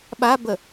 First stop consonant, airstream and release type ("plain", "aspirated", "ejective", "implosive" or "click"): implosive